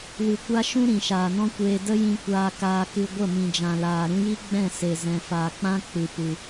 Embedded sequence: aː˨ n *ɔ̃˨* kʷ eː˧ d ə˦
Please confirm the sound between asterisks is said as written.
no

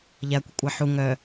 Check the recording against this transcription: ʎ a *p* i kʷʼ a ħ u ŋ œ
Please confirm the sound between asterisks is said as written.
no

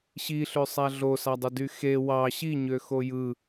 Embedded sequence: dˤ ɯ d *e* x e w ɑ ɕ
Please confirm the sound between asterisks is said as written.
no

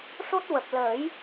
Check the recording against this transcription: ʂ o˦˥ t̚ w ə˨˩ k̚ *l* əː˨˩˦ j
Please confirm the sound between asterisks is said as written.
yes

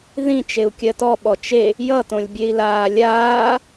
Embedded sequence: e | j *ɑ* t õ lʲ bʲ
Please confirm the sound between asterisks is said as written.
no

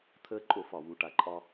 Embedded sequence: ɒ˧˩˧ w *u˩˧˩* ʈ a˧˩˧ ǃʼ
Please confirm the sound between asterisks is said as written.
yes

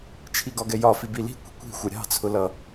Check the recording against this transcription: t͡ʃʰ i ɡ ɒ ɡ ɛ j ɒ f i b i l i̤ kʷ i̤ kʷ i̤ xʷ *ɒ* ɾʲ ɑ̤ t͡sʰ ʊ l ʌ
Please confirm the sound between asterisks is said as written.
no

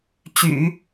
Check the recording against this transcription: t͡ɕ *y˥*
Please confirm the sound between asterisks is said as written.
no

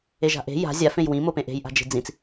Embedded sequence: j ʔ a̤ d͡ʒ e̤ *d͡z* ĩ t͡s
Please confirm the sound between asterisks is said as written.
yes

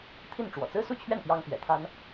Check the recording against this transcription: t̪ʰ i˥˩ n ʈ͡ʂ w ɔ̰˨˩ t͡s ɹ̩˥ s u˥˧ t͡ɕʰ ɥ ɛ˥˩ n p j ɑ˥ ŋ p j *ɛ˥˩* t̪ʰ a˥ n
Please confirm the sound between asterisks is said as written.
no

